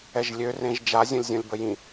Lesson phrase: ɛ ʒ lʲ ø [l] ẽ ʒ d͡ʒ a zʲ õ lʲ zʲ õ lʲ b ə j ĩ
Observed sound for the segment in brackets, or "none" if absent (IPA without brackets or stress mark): r